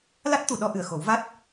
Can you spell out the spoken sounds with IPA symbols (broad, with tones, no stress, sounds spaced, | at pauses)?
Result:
l a˦˥ t̚ t̪ u˨˩˨ ɗ ɔ˧ ʔ ɨ˨˩ ə̯ x o˨˩˦ w v a˦˥ t̚